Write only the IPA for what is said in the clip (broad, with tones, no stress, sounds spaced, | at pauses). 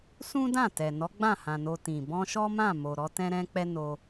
s ũ˦ d ã˦˨ t ɛ˨ n ɔ˨˦ ɡ͡b ã˦˨ h ã˨ n o˧ t ĩ˨ b ɔ̃˧ ʃ ɔ˦ m ã˦˨ m o˨ ɾ ɔ˧ t ɛ̃˦ ɾ ɛ̃˦ k͡p ɛ˦ n o˧